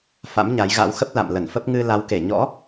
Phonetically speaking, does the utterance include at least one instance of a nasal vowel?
no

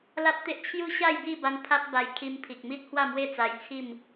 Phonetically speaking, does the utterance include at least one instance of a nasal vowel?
no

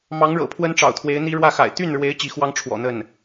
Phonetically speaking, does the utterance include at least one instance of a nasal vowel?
no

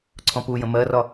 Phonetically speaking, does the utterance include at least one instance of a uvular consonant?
no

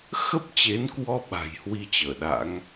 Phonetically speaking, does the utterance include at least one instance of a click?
no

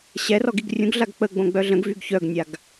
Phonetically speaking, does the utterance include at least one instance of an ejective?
no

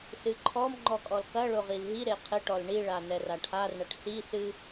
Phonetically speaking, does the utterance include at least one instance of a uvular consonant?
yes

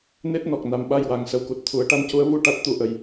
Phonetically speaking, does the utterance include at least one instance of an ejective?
no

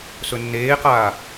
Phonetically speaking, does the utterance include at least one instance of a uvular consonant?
yes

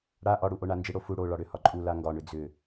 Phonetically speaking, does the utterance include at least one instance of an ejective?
yes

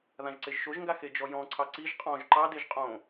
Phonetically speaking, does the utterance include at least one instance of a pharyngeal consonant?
no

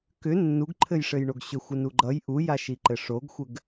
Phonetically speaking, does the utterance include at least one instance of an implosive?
no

